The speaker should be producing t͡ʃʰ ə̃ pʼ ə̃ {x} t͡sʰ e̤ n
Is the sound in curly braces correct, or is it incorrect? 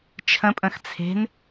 correct